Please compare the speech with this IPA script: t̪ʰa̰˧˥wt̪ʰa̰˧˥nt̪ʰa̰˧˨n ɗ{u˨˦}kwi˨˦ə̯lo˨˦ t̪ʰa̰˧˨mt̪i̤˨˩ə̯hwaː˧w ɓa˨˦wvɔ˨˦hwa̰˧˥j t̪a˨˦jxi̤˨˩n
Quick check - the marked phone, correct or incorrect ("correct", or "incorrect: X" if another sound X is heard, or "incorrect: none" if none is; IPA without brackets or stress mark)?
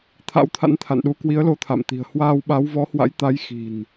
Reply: correct